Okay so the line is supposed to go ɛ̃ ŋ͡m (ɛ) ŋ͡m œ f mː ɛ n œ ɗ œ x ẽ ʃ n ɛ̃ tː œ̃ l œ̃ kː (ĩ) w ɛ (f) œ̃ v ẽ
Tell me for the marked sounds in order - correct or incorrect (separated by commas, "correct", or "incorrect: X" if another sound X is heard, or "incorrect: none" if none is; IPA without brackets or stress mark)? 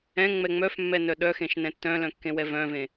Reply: correct, incorrect: ẽ, incorrect: v